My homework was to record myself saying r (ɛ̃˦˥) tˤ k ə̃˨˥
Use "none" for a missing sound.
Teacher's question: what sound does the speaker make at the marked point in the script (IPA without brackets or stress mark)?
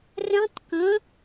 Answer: ɛ̃˦˥